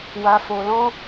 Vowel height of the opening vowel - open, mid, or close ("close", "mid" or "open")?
open